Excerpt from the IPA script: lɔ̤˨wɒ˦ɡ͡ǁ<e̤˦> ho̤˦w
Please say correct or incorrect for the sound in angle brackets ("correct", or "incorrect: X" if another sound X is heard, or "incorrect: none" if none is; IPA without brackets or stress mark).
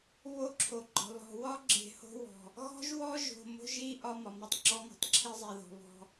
incorrect: e̤˨